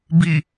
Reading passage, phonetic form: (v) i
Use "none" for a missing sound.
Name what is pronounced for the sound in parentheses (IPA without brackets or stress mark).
b